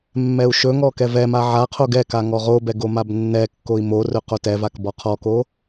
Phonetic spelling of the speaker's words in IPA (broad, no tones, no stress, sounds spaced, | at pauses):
mː ɛ u̯ ʃ ɵ ŋ ɔ k ɛ v ɛ m a ʕ a qʰ o ɡ ɛ k a ŋ ɔ ʁ o b ɛ ɡ o m a b nː ɛ kː o i̯ m o r ɵ q o t ɛ v a k b ɔ qʰ ɔ k o